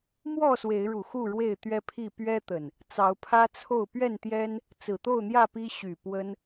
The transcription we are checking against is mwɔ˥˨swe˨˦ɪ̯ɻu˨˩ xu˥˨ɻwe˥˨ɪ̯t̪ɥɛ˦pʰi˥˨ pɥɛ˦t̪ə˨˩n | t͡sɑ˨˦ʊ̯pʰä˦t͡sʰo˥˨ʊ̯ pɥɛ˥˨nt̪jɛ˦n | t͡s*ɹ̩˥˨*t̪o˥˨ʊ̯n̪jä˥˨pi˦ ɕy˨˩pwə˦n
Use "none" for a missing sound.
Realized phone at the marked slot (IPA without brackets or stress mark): ɹ̩˨˩